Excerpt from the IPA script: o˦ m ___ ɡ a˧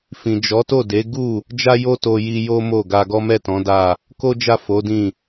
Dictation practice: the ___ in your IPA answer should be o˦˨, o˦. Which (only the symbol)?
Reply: o˦˨